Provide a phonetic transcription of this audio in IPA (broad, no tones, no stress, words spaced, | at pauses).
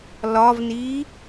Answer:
lɒvniː